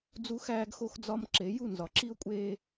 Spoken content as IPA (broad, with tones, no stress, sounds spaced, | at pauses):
d͡z u˦ x æː˦ ɡ x o˦ x d͡z ɒ˦ m ǁ e˨˦ j u˦˨ n z ɒ˨ ǁ i˦ ʊ̯ kʷʼ eː˦